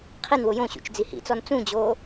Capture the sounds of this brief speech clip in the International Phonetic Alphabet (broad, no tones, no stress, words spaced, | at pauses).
qʰinwʊ jõɕṵt͡ʃ d͡zihḭt͡sɔn t͡sũd͡ʑoː